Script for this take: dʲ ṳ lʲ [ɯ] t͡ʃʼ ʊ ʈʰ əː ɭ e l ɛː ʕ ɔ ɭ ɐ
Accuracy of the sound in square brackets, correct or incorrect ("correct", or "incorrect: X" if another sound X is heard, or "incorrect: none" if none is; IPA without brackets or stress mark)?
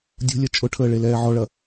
incorrect: ə